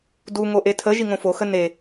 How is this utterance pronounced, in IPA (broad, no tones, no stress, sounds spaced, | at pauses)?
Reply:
d u ŋ o ʔ e tʰ ə ʒ i ŋ õ f o x ə n e